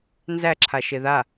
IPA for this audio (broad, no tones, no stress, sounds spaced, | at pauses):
n z æ ǁʰ a ʃ e ð a